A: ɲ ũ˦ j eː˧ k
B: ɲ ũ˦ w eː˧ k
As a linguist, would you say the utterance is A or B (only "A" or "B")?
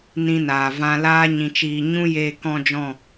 A